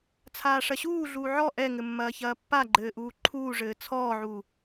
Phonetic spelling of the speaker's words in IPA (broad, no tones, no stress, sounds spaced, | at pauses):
t͡sʰ aː ʂ ɐ ɕ uː ɮ uː ʕ ɔ ʔ ɛ ŋ ɘ mː ɐː ç ɐː pː a ɡ͡ǃ ɘː ʔ uː ǃʰ uː ʐ ɘː t͡sʰ ɔː ʕ u